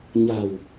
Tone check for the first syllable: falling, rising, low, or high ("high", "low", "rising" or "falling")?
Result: low